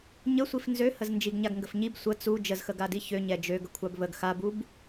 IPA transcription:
ɲ ə sʷ i f n z ø h ə z n d͡ʒ i ɡ ɲ a ɡ ŋ ɡ ə f ɲ i b sʷ ə t͡s u d͡ʒ ə z x ə ɡ a d i ç ø ɲ ɛ d͡ʒ ø ɡ ə kʷʰ a b β ə ɡ x a b u b

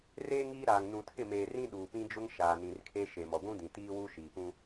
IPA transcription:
r eː˦ ŋ iː˦ ɾ aː˨ ŋ n ũ˨ tʰ ɪ˦˨ m eː˨ r ĩ˦ ɗ uː˨ p ĩ˦ d͡ʒ ʊ˦ ŋ ʃ aː˨ n ĩ˨ r kʰ e˦ ʃ e˨ m ɔ˨ ɡʷ ũ˦ d ĩ˨ t iː˦ w u˦ ʃ iː˨ p ũ˦

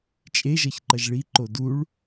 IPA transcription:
t͡ʃʼ e ʒ ʌ ç ǃ ʌ ʒ ɭ i ǃ o d u ɭ

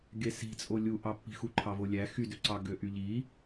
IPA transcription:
ɡ e s i̤ t͡sʼ o lʲ u ʔ ɑ pː i̤ x u ǃʰ ɑ v o lʲ æ x y d ø ǀ ɑ ɡ ø ʔ y ʎ i

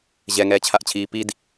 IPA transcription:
ʑ ɛ ŋ ɛː t͡ɕʰ a ʔ t͡ɕʰ iː p i d

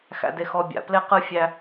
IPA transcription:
x æ̰˦ d e˦ x ɔ˦ bʲ a̰˨ p l e˥ q ɯ˥ fʲ æ˦

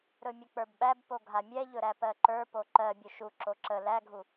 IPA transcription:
ɾ ɵ mʲ ə k͡p ə˞ b ɓ æ b p o ɡʱ a mʲ ɛ ʎ ɵ ɾ æ p ɜ ǃ ə˞ p o ǃ ɜ bʲ ɵ ʃ u ǁ o ǁ ə l æ ɡʱ u

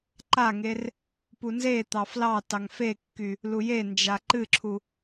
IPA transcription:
ǃ a ŋ e r | p u n z e t̪ ɑ f l ɑ t ɑ ŋ f e kː y | l u j e n d͡ʒ a ǃ ɨ ǁʰ u

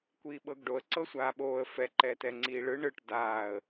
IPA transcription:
kʷ iː ɓ ɤ ɡ ɖ o ə̯ ǀ ɤ sʷ aː ɓ oː ə̯ f ɛ ǃ ɛː t ɛ ŋ͡ǀ iː ɭ ɯ ɳ ɯ ʈ d aː ə̯

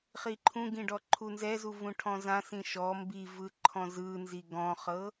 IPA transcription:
χ i ǃʰ ũ ɡ ĩ ɖ ɔ ǃʰ u n z ɛ z u v ũ ʈʰ ɔ̃ z ã s ĩ ʃ ɔ m b i v ɯ ǃʰ ɔ̃ z ɯ n z i ɡ ɔ̃ χ ɤ

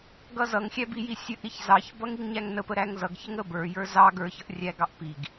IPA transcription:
ɡ ʌ z ʌ ŋ xʲ æ b i j i sʲ ə ʔ ɾ i ç z ɑ ç b ʌ ŋ i ŋ ɲ æ ŋ n ə p ə ɾ æ ŋ z ʌ ɡ ç ə ŋ ə b ə˞ j ə˞ z ɑ ɡ ə˞ ç ʌ ʔ rʲ æ ɡ ɑ ʔ p i ɡ

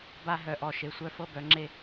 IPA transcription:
b a˦ ɦ œ˨ ʔ ɔ˨ ʃ e˨ sʷ œ˦ f ɤ˦ b œ˨˦ ŋ͡ǁ e˦

